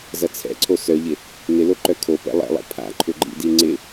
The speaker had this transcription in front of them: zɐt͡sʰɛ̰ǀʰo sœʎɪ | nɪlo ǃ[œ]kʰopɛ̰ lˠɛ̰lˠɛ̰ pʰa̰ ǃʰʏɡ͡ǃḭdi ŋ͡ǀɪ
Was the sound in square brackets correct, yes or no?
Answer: yes